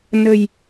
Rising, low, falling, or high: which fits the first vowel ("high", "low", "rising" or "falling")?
low